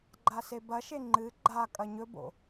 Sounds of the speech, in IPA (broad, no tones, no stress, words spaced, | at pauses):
ɡ͡ǃasebɐʃe ŋ͡ǃɨ ɡ͡ǃa kʼɐɲɵbo̰